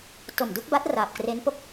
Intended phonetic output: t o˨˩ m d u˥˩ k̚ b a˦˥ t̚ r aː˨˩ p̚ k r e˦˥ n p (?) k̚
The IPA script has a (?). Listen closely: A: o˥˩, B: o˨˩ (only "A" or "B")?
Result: A